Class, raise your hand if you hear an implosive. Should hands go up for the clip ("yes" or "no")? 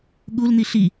yes